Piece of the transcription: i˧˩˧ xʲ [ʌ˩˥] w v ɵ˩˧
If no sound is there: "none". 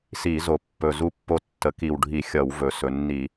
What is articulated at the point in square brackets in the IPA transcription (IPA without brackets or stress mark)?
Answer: ʌ˧˩˧